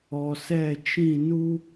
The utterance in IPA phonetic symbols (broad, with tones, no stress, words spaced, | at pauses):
ɔ˨sɛ˦˨t͡ʃĩ˦˨ nu˦